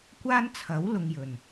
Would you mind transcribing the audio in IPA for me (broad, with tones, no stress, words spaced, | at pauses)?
kʷaː˥nt͡sʰɐ˨˥w lʊ˨˧ŋjɵ˨˩n